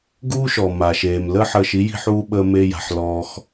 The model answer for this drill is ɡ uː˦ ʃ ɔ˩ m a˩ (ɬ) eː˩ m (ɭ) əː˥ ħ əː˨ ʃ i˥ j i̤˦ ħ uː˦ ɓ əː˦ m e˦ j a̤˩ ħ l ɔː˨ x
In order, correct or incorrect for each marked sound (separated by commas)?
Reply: incorrect, incorrect